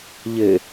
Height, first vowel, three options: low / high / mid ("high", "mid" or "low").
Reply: mid